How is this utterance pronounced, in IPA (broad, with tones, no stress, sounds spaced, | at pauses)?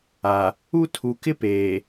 a˨ | u˦ tʰ u˨ k ɪ˦ p eː˨